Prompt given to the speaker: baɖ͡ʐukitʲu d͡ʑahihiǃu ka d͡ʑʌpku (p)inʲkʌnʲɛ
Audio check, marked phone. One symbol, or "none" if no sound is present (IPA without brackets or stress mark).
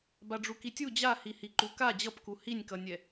h